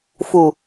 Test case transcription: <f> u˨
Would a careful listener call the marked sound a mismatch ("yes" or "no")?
no